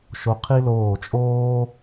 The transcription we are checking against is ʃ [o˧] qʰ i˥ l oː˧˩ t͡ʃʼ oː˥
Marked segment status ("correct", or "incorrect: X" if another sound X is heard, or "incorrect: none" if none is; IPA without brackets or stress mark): correct